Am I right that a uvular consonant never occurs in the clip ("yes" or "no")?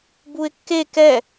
yes